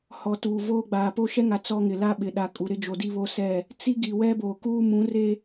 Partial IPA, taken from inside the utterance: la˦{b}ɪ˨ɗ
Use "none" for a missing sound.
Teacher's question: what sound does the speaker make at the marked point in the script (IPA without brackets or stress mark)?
ɓ